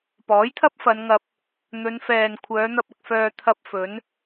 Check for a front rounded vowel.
present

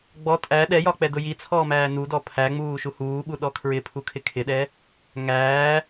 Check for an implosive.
present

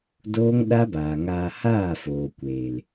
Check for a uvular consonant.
absent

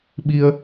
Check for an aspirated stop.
absent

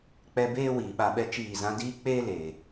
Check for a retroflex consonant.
absent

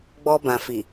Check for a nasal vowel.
present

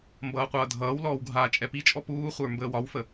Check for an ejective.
present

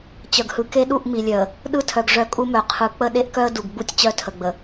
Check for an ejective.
present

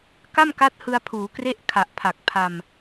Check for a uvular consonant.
absent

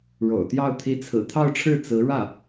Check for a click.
absent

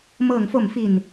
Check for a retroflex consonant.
absent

